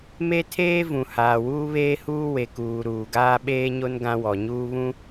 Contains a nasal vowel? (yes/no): yes